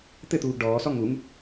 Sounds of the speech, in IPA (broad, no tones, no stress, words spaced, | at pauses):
t̪ɘt̪uːɡ ɖɔːsɔ ŋuŋ